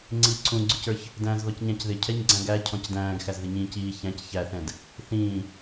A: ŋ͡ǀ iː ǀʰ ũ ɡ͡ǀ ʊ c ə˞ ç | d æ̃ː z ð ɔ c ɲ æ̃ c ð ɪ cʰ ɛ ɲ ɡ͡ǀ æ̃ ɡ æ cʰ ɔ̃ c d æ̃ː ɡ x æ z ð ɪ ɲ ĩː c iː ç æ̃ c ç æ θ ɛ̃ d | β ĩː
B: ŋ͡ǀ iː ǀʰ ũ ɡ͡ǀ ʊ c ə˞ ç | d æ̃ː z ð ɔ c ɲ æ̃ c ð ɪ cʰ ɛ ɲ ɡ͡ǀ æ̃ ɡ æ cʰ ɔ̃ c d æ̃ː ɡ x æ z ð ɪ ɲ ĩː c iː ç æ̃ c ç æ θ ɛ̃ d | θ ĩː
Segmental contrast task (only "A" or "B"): B